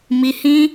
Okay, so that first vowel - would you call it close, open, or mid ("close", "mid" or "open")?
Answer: close